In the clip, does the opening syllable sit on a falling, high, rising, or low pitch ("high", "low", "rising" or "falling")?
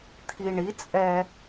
low